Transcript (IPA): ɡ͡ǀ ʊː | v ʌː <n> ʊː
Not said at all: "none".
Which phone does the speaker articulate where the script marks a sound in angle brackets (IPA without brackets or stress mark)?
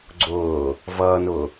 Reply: n